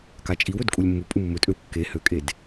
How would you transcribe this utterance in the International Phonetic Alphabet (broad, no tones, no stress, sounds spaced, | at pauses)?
k a t͡ʃʼ i w ɵ d kʼ u lʲ mː u pʼ u mː ɵ tʼ ø w kː e h ø kʼ e d